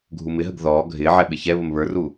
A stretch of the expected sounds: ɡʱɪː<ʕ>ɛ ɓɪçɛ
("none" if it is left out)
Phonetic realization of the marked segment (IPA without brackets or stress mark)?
ʕ